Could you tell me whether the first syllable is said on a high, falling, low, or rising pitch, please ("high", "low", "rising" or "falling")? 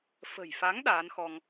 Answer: low